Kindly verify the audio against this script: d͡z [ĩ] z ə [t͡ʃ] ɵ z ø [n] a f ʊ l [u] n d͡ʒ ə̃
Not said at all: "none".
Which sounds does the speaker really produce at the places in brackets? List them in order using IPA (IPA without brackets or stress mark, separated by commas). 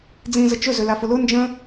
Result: ĩ, t͡ʃ, l, ʊ